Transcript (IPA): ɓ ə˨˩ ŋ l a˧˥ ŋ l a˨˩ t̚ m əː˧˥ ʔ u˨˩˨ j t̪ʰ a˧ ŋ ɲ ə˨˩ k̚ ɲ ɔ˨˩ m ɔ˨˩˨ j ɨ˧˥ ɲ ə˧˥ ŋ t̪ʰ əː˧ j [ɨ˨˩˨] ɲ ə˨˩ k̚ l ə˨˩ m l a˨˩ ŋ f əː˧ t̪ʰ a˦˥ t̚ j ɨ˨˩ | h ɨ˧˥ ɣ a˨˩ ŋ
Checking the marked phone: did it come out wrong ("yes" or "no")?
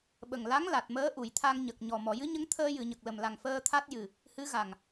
no